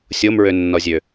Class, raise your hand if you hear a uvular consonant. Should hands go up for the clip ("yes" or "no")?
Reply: no